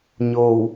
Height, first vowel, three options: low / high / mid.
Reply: mid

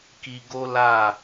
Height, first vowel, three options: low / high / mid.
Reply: high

